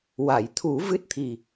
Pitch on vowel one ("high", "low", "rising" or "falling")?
low